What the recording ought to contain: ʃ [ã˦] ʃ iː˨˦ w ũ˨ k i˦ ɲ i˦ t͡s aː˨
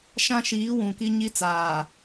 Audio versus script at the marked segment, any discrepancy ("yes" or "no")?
no